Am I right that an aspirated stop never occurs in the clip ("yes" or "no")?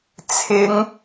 no